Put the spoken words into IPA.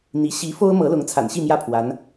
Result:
n̪ i˧˥ ɕ i˧˥ f o˥ ʊ̯ m ɤ˧˥ l ʊ˧˥ ŋ t͡sʰ a̰˨˩ n ɕ i˥˧ m j ä˥˩ pʰ w a˧˥ n

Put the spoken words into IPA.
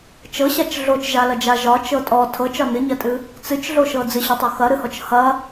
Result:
t͡ʃ ɤ ɕ a t͡ʃ ɮ o t͡ʃ ʒ a l ɐ d͡ʒ a ʒ ɒ t͡ʃ ɤ tʼ ɔ tʰ ɤ t͡ʃ ɒ n ɨ ɲ ɐ tʼ ɨ | t͡s ɨ t͡ʃ ɮ o ʃ ɤ d͡z ɨ ɕ ɒ tˤ o x ɐ ɾ ɨ h ɔ t͡ʃ h ɐ

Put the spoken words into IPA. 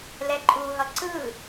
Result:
l ɛ ǃʼ u ɦ ʌ ǀ ɯ

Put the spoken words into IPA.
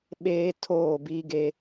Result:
ɓ eː˦ tʰ oː˦˨ b iː˦ ɡ e˦

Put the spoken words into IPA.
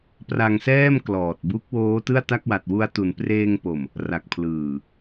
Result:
p r a˧ ŋ s ɛː˥˩ m k l ɔː˨˩ t̚ b u˦˥ k̚ w oː˦˥ t ɯ˥˩ a̯ t a˥˩ k̚ w a˨˩ t̚ w u˧ a̯ t u˩˦ n p r eː˧ ŋ p o˨˩ m | r a˨˩ k̚ pʰ l ɯː˨˩

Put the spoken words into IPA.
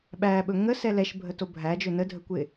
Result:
ɓ æ ɓ ɵ ŋ ə s ɛ l ɛ ʃ bʱ ə t o bʱ æ d͡ʒ ɵ n ə dʱ ə kʷ ɪ

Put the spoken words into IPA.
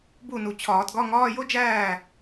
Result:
b u˥˩ n u˨ t͡ɕʰ ɒː˨˩˦ t ɡ ɒ˧˥˧ ŋ ɒː˧˥˧ j o˥ d͡ʒ æː˥˩

